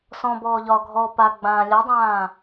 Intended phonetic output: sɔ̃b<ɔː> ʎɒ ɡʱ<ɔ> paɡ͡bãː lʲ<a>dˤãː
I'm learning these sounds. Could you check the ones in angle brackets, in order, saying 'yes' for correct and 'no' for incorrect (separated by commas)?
yes, yes, yes